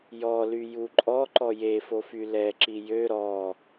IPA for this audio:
j ɔ l y j u ǃʼ ɔ ǃ ɔ j e f o f y l ɛ ǁ i j ø ɾ ɔ

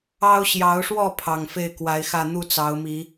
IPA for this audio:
ɑ˦ ʊ̯ ɕ j ɑ˨˦ ʊ̯ ʂ w ɔ˥˨ pʰ ɑ˨˩ ŋ f e˥˨ ɪ̯ k w a˨˦ ɪ̯ x ä˥˨ n̪ u˥˨ t͡s ɑ˨˦ ʊ̯ m i˨˦

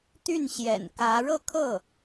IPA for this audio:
t̪ y˥˩ n ɕ j ɛ̰˨˩ n k ä˧˥ ɻ ɤ˥˧ kʰ ɤ˥˩

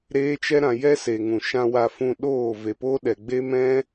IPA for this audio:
ɾ eː˦ t͡ʃ ɛ˦ ɾ ã˧ j ɛ˦ s e˨ ŋ ũ˨ ʃ ã˧ w a˧ f ũ˧ ɗ oː˦˨ v e˨ p oː˦ ɗ ɛ˨ ɡ͡b e˦ m ɛ̃˦

